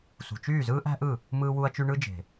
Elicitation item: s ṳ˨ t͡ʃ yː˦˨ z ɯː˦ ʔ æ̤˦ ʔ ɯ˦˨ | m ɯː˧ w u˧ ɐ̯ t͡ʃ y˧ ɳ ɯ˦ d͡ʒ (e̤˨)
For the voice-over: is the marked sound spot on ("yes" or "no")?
yes